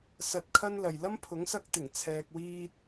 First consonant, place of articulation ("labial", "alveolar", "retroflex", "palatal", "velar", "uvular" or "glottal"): alveolar